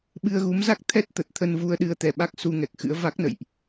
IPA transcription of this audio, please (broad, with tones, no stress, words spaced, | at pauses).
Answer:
ɓɨ˧ə̯ɣu˨˦m za˦˥k̚t̪ʰɛ˦˥t̚ t̪ə˨˩t̚t̪ʰə˧nvu˧ə̯ɗɨ˧ə̯ t̪ɛ˨˩ ɓa˦˥k̚ su˧ŋɛ˨˩k̚ xɨ̰˧˥ə̯ va˦˥k̚nə̰˧˨jʔ